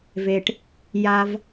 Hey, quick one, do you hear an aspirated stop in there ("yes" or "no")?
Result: no